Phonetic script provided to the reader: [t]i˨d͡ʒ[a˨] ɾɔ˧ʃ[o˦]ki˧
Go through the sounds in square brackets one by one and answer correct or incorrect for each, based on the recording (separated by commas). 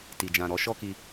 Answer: correct, incorrect, incorrect